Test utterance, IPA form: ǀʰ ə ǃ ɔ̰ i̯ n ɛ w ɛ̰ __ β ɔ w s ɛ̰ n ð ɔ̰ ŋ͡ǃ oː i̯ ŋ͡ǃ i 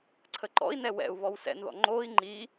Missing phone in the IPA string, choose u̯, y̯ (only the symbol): u̯